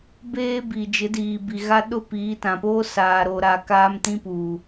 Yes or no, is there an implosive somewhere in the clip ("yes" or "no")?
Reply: yes